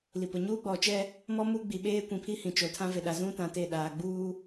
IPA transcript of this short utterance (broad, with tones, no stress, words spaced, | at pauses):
li˨pʊ˨ ɲuː˦ɡ͡bɔ˨t͡ʃɛ˦ | mɔ˦ mu˦ɡ͡bi˨ ɓeː˦kʷĩ˨pʰi˦ hĩ˨t͡ʃo˨tʰã˦ve˨ ɗa˨zũ˦tã˨ te˦˨ɗaː˨ ɡ͡buː˦